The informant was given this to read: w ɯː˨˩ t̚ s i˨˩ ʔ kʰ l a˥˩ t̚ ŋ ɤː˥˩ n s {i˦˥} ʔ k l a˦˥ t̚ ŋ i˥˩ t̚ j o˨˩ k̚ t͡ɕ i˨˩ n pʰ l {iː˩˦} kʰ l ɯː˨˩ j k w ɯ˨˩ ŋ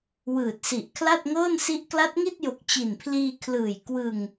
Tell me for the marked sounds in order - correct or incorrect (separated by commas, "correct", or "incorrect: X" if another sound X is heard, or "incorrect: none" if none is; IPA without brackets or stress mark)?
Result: correct, incorrect: iː˧